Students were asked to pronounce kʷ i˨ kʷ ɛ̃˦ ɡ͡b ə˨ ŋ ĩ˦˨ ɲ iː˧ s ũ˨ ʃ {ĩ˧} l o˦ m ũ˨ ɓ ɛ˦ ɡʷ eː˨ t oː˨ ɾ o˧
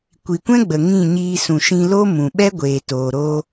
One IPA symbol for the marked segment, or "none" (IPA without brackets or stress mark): ĩ˧